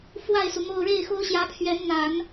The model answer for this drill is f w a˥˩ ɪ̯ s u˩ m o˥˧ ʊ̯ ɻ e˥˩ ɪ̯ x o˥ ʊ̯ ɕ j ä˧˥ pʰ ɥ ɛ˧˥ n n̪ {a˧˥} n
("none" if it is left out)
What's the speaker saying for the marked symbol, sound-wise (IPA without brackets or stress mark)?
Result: a˨˩˦